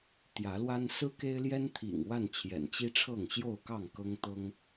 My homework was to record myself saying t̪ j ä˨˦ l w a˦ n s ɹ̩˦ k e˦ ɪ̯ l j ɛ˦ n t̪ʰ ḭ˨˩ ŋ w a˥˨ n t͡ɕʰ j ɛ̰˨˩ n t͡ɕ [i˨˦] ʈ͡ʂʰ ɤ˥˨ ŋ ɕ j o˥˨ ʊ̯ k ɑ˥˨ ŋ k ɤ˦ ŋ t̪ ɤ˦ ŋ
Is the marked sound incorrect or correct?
incorrect